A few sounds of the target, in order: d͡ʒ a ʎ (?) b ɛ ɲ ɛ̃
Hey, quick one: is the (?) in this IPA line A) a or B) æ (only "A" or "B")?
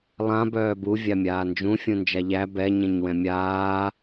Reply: B